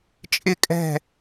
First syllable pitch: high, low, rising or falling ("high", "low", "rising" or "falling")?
falling